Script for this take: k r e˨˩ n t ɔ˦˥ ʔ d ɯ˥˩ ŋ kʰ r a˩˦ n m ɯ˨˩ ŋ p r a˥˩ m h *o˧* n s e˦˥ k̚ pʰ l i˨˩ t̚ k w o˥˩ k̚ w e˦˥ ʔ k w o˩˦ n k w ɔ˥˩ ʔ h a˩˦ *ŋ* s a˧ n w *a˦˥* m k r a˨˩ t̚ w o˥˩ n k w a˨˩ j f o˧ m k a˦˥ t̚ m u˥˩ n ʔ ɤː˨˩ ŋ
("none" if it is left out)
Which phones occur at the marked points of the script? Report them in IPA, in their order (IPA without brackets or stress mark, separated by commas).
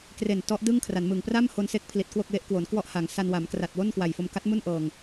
o˧, ŋ, a˩˦